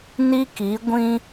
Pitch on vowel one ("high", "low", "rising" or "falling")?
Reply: high